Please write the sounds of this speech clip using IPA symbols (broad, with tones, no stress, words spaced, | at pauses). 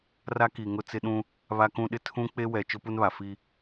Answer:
ra˦ki˨ ŋʊ˦ t͡sɪ˦ ɗũ˦ | βa˦kũ˦ɗɪ˦ tʰũ˦ k͡pe˦wɛ˨ t͡ʃʊ˦pu˦nβa˨ fi˦